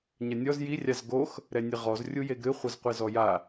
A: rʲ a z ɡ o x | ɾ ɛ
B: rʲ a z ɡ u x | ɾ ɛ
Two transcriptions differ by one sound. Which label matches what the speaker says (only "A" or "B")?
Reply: A